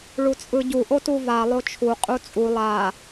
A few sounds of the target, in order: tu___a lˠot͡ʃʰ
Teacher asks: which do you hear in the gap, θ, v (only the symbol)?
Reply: v